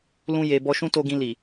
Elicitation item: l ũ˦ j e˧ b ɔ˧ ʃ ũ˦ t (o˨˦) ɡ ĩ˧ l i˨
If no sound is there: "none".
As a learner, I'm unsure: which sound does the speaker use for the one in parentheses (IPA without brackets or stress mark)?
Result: o˧